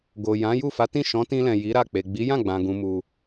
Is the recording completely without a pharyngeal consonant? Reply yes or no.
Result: yes